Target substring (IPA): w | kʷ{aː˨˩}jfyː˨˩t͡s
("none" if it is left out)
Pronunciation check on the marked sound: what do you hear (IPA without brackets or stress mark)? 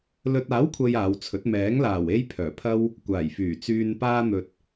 aː˨˩